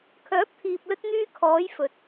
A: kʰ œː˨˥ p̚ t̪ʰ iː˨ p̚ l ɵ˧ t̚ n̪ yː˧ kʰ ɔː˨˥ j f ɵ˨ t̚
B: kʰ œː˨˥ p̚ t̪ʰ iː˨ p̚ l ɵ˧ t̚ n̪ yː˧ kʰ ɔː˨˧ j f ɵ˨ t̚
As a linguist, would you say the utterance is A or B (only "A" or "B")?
B